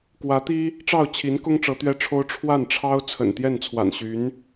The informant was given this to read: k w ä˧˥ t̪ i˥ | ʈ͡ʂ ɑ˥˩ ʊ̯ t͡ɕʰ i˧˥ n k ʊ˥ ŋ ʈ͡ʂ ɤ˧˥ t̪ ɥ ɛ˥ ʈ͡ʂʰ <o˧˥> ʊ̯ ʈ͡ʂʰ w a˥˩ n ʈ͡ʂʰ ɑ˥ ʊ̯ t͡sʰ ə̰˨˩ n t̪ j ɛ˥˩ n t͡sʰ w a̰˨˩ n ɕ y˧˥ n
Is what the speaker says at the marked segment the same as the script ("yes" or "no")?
no